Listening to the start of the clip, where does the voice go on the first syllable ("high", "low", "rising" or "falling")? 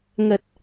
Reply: low